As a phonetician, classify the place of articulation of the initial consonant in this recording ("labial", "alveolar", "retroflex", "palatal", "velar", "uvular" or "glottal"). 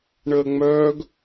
retroflex